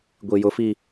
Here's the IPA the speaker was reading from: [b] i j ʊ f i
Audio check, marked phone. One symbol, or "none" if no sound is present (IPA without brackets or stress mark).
ɡʷ